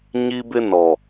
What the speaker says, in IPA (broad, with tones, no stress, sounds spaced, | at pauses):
ɲ i˦ b ɪ˦ n ɔ˨